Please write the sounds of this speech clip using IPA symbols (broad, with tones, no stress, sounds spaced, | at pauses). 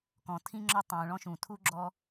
k ɔ̃˩ tʰ ĩ˥ ŋ͡ǁ ɒ˥ tˤ ũː˩ ɭ ɔ̃˦ ʃ ũ˩ tʰ u˥ ɡ͡ǁ ɔ˦